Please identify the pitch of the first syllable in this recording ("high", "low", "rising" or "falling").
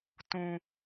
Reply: low